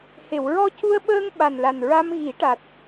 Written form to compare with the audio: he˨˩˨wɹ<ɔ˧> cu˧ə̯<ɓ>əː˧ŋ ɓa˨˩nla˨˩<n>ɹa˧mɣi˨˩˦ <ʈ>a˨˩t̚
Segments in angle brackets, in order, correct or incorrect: correct, correct, correct, correct

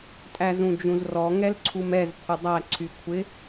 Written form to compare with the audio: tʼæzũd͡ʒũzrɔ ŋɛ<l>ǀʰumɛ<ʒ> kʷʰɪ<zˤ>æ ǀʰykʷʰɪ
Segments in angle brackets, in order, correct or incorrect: correct, incorrect: z, incorrect: dˤ

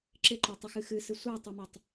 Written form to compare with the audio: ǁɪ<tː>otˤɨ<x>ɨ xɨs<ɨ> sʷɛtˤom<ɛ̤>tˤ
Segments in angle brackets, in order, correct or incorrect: incorrect: ǃ, correct, correct, incorrect: ɛ

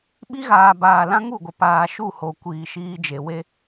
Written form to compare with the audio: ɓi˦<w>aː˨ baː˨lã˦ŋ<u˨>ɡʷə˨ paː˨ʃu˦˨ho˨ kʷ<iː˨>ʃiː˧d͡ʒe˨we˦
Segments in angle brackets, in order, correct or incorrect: incorrect: ɣ, incorrect: u˦˨, correct

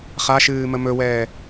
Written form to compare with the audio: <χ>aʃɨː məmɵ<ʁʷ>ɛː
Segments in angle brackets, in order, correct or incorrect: correct, incorrect: w

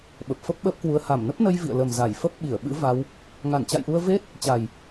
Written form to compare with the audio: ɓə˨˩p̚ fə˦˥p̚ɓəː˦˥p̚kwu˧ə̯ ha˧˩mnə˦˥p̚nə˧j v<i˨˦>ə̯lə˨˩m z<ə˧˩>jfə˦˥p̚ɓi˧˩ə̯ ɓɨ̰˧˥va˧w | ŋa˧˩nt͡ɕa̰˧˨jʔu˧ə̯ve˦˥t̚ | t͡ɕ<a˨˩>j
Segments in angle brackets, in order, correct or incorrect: incorrect: ḭ˧˨, incorrect: a˧˩, correct

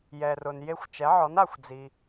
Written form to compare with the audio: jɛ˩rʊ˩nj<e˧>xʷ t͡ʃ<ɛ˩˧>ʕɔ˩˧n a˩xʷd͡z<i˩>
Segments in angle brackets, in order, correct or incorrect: correct, correct, correct

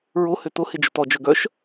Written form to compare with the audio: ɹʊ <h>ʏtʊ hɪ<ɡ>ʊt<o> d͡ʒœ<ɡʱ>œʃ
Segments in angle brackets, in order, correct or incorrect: correct, incorrect: d͡ʒ, incorrect: ɔ, incorrect: ɡ

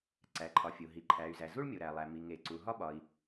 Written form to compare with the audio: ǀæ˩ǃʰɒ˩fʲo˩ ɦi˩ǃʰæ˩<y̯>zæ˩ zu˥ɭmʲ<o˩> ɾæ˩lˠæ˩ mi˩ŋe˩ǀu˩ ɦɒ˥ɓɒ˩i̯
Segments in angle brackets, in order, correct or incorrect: correct, correct

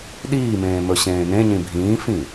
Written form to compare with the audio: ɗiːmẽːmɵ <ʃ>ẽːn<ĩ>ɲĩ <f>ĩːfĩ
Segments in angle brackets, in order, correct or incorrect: incorrect: ɕ, incorrect: ẽ, incorrect: bʱ

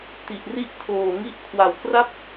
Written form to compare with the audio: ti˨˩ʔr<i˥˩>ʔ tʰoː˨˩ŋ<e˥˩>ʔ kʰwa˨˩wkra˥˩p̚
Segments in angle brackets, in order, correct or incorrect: correct, incorrect: i˥˩

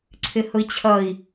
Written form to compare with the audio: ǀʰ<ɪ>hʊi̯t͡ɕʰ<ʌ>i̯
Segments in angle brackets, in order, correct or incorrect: correct, correct

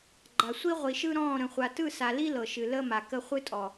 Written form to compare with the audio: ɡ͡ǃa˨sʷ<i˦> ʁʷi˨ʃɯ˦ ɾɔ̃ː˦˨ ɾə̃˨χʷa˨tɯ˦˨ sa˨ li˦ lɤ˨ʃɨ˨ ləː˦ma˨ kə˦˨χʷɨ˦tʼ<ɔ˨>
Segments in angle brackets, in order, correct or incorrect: correct, correct

